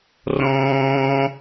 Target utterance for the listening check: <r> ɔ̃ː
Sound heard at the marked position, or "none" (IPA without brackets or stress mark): r